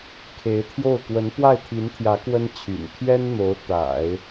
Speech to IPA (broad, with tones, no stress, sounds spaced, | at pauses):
kʰ e˧˥ ɪ̯ t̪ʰ j o˥˩ ʊ̯ k w ə˧˥ n p w a˥˩ ɪ̯ t̪ʰ i˧˥ n t̪ʰ j ä˧˥ k w ə˥ n t͡ɕʰ y̰˨˩ n t̪ʰ ɥ ɛ˥ n n̪ o˧˥ ʊ̯ t̪ a̰˨˩˦ ɪ̯